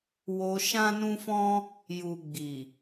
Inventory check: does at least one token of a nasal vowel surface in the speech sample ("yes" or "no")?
yes